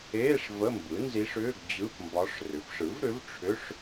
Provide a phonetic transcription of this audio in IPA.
eː˧˥˧ ʂ v ə˧˥˧ m b ɯ˩˥ n z i˧˥ ʂ ʏː˧˥˧ ɡ d͡ʑ ɯ˧˥˧ p m b ɒ˧˥ ʂ r ʏ˩˥ p ʂ ɯ˩˥ v ɾ ʏ˩˥ v ʈ͡ʂʰ ʏ˧˥˧ ʂ

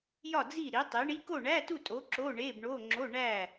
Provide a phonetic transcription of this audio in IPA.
j ɒ˥˨ d͡z i˥˨ ɾ i˨˥ tˤ i˨˥ ɳ i˧˥˧ k o˥˨ ɳ æ˧˥˧ t u˥˨ tʼ o˨˥ ǁ o˧˥˧ ɳ e˧˥˧ b ɳ o˧˥˧ ŋ͡ǁ o˧˥˧ ɳ æ˥˨

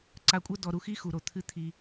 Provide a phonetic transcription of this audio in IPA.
ǀ a˨ kʷʼ ɐ˦ d ɔ˨ ɾ u˨ x i˦ x u˨ ɾ o˨ t̪ʰ ɨ˦ t̪ʰ i˦

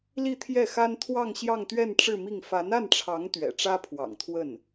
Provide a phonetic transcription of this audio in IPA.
l i˥˧ t̪ʰ j ɛ˥˩ x a˥ n t̪ʰ w ɑ˥˧ ŋ ɕ j ɑ˥˧ ŋ t̪ ɥ ɛ˥˧ n ʈ͡ʂ ɻ̩˥˧ m i˥˩ ŋ f a˧˥ n a˥˩ n ʈ͡ʂʰ ɑ˧˥ ŋ t̪ ɥ ɛ̰˨˩ ʈ͡ʂ ä˥ pʰ w ɑ̰˨˩ ŋ t̪ʰ w ə˥˩ n

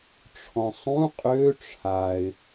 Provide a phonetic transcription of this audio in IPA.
ʈ͡ʂʰ ɔ̃ sˤ ũ qʼ ø ʈ͡ʂʰ a ɪ̯

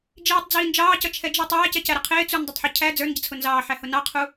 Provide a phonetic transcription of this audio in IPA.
d͡ʒ iː tˤ d͡z iː n d͡ʒ ɑː c ʌ t͡ʃʰ ɛ d͡ʒ ɪ tˤ æː c ɛ c æ ɾ ə qʰ ɪː t͡s u n dˤ ɪ tˤ ħ ʊ cʰ æ d͡z ə˞ n ɟ ə t͡sʰ ʊ n z ɑː ħ æ h ʊ n ɑ qʰ u

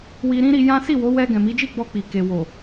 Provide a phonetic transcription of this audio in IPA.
w i˧ ɾ ĩ˦ ɾ i˧ j ã˦ s i˦˨ w o˨˦ w ɛ˧ ɡ ɛ̃˨ m i˨˦ d͡ʒ i˦˨ ɡ͡b ɔ˧ k͡p i˨ k e˨ w o˨

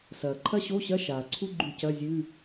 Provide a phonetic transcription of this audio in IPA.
s ɐː˩ ǃʰ ɐ˥ ɕ o˧˥˧ ɕ ɐ˧˥˧ ʃ aː˩ ǀʰ u˥ ɡ͡ǃ ʉ˧˩ c ɐ˧˥˧ zʲ ʉ˧˥˧

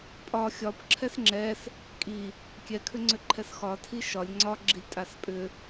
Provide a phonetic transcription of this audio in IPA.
pʼ ɒ xʲ ɒ p ǁʰ ɛ s ŋ͡ǁ ɛ s | kʼ i | kʲ ɛ kʰ ʏ ŋ͡ǀ ʏ ǃʰ ɛ s x ɒ tʰ i ʃ ɒ lʲ ŋ͡ǀ ɒ ɡ͡ǁ i lʲ tʼ a s pʼ ʏ

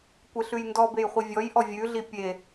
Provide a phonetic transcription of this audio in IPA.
kʷ e ɬ ʉ j n d ɔ b e j χʷ i vʲ ɔ j ʔ ɔ vʲ ʉ ɮ i pʲ e

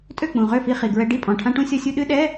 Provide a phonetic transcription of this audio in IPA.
tʼ ø˥˩ k͡p ũ˨˩ ʁ ø˥˩ f i˧ χ i˨˩ ɡ ɹ ɛ˧ ɖ i˥˩ pʼ ɔ̃˨˩ ʈʰ ã˧ ʈ ũ˧ sʲ ɔ˧ sʲ u˧ ɗ ɨ˧˥˧ ɗ ɛ˧˥˧

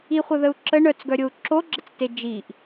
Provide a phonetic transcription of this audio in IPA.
i χʷ ə ð ə u̯ ǁ ə ɳ œ t͡s ɡ œ ɾʲ o u̯ ǁ o ɡ͡ǁ ə t͡s t e d͡ʒ i ʔ

